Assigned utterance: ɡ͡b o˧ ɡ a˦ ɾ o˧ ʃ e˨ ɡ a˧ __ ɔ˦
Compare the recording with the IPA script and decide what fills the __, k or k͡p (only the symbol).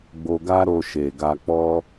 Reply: k͡p